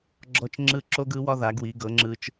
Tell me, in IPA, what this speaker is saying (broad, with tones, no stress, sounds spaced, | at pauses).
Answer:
ɡ͡ǁ ɔ˦ t͡ʃ ŋ͡ǁ ɯ˦ ǁ o˦ ɡ ɯ˨˦ w ɒ˦ ð a˨˦ ɡ w i˨˦ ɡ ɤ˨˦ ŋ͡ǁ ɯ˦ t͡ʃ